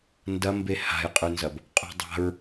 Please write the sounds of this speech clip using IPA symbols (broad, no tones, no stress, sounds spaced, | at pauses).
n d ɐ m b e h a̤ j qʼ ʉ n z ɐ b | qʼ ṳ dˤ a̤ ɹ